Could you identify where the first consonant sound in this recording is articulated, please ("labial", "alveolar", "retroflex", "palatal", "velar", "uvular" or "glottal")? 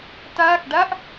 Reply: alveolar